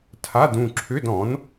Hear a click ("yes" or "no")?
yes